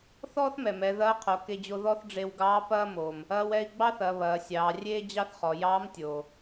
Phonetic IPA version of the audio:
θ ɔː˥ θ m ɛ˩ m ɛ˩˧ ð ɐː˧˥ qʰ o˩˧ k e˧ d͡ʑ o˧ ð ɔ˥ θ ɖ͡ʐ e˧ w ɡ ɑː˧˥ p ɐː˥ m oː˩ m | ɐː˧ w ɛ˧ i̯ ɡ͡b ɑ˥ θ ɐ˩˧ β ɐː˩˧ sʲ ɑː˩˧ rʲ eː˥ d͡ʑ ɑ˥ θ χ ɔ˩˧ j ɑː˧˥ m tʲ oː˩

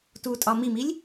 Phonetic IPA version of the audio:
t u tʼ ɒ m i m i lʲ

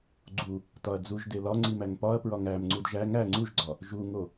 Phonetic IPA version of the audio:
ɡ͡ǀ u | t ɒ ɐ̯ d͡z u ʒ d e l ɒ ŋ͡ǀ i m æ ŋ p ɒ ɐ̯ p ɹ ɒ ŋ æ m ŋ͡ǀ u d ʒ æ ŋ æ ŋ͡ǀ u ʒ ɡ͡ǀ ɒ | ʒ u ŋ o

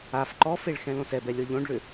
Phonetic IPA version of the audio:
a f ǃ ɔ f e ɭ x ɛ̃ l õ s ɛ b ɛ lʲ ɤ ʎ õ ɖ ɭ ʏ

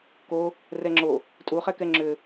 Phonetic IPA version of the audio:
k o | r ɛ ŋ͡ǁ o | tʼ u χ ɛ k ɛ ŋ͡ǁ ʏ

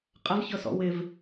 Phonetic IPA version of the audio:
qʼ ɐ v ç ɤ s ɔ̰ w ɪ v

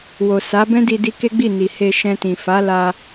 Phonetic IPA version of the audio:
w o˨ s a˨˦ b ɛ̃˦ d i˧ d i˧ k e˦ ɡ͡b i˦˨ n i˨ h e˧ ʃ ɛ̃˧ t ĩ˨ f a˨˦ l a˧

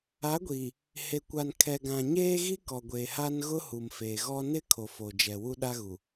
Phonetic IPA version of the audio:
a˨˦ ɡʷ iː˨ | h e˨ kʷ a˨ n kʰ ɛ˨ ɡ ã˨ ɲ eː˦ ɣ i˦ k ɔ˨ ɡʷ eː˨ h a˦ n ɣ ʊ˦ h u˨ m f eː˨ ɣ ɔ˦ n ɪ˦ kʰ o˨ f o˨ d͡ʒ ɛ˨ w u˦ ɗ a˦ ɣ u˨

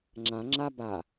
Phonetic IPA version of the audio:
ŋ͡ǁ ã ŋ͡ǁ a b a

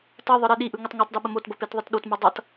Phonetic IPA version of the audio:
t ʌ ðˤ ɯ ɾ e ɗ i ʔ ɯ ŋ ə tˤ ŋ o tˤ d ə ɓ ə m o t b ʌ p e t ðˤ ə t ɗ o t m ɯ dˤ ʌ t

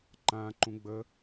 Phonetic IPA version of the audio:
ǃ ã ǃ ũ ɡ͡b ə

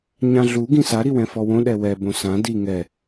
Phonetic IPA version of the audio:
ɲ ã ɮ u ɡ ĩ s a ɾ i w ɛ̃ f ɔ w õ ɗ ɛ w ɛ b õ s ã d i ŋ ɛ

